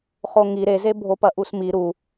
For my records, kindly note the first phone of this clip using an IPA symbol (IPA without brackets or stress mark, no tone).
χ